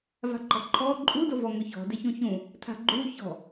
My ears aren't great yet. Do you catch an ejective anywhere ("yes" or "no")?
yes